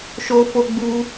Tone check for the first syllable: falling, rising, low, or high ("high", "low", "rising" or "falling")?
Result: high